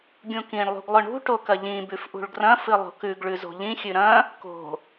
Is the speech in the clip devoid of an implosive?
yes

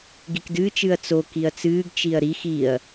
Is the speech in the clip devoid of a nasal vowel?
yes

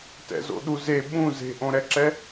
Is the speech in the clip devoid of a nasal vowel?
no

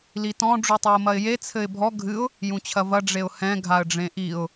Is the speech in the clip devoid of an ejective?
yes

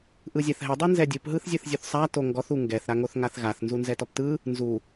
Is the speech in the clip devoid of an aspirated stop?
yes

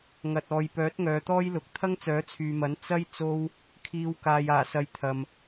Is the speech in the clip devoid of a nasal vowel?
yes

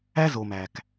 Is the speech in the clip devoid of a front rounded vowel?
yes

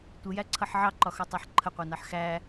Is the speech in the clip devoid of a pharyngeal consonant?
no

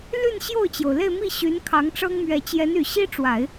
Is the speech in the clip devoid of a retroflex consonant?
no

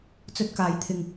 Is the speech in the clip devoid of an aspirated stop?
no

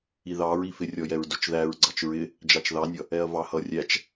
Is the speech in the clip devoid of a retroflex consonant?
yes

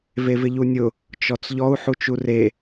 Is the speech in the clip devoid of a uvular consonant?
yes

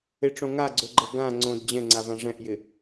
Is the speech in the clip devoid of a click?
no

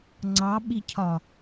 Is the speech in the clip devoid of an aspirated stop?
no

